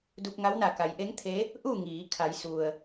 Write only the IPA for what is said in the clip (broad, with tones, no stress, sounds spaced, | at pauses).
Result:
d u˧ p̚ ŋ a˧˥ w n a˧˩ k a˩˧ j ʔ e˧˥ ŋ t̪ʰ e˧˥ | ʔ u˥˨ ŋ iː˩˧ kʰ a˩˧ j s u˩ ə̯